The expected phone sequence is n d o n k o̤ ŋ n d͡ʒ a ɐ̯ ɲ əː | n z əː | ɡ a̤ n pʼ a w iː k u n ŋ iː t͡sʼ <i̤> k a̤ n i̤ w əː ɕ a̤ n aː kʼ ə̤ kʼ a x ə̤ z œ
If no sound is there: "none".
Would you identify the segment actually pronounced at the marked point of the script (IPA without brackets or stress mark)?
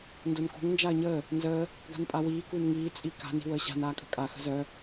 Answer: i